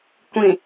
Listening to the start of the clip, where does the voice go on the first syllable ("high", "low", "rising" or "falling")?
low